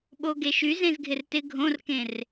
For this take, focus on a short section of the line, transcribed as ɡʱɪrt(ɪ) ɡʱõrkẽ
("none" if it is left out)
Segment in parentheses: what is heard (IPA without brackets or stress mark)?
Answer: ɪ